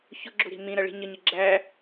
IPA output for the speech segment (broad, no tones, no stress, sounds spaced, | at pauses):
ç ʊ ɡ͡ǁ u ɾ i̤ m ĩ ɾ ʌ ɭ i̤ ɲ ə ɲ ɪ ɡ͡ǁ æ